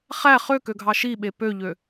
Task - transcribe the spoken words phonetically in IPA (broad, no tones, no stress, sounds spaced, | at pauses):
χ æ χ ø k ø ɡʱ ɑ ʃ i ɓ e p ø ʎ ø